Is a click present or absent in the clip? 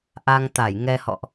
absent